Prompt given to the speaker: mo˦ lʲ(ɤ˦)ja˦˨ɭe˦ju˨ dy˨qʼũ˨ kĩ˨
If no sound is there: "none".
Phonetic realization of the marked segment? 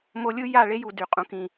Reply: ɯ˦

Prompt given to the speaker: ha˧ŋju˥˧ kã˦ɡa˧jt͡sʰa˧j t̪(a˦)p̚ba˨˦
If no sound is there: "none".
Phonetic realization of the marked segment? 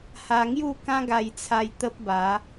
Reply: ə˦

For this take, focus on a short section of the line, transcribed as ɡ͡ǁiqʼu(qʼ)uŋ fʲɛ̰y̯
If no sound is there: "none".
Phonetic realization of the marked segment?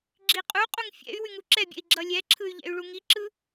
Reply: qʼ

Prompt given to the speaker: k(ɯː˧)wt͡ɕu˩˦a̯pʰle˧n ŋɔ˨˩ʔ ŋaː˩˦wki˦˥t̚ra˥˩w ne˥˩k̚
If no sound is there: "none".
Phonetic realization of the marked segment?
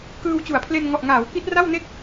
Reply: ɯː˧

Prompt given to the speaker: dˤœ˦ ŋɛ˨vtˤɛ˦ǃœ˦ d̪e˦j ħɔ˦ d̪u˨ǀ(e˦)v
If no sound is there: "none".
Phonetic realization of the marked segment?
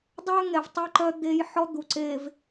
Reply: e˨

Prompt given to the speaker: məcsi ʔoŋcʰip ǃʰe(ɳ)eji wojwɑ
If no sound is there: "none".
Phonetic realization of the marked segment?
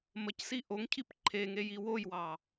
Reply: ŋ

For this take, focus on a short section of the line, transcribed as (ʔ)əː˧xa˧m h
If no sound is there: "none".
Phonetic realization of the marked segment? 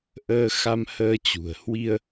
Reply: ʔ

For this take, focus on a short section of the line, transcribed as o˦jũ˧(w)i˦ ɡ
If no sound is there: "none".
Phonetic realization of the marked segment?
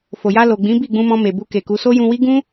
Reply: w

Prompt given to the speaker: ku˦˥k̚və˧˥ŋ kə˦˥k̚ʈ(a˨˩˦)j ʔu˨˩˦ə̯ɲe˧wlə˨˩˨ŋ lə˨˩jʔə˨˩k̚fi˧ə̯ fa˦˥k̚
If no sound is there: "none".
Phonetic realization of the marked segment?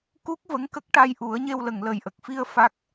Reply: a˧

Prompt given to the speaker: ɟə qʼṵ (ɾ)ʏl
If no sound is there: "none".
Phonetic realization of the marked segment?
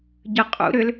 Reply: ɾ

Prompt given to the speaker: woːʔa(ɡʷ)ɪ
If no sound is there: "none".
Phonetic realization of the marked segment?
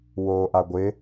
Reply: ɡʷ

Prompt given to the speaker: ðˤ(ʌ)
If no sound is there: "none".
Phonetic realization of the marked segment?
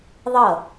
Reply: ʌ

